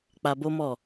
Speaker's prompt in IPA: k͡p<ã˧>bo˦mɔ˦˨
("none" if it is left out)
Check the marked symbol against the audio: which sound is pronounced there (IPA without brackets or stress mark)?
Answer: a˧